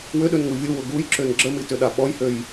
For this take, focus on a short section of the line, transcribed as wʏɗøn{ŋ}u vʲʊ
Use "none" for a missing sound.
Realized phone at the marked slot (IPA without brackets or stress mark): ŋ